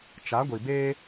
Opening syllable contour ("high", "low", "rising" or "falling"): rising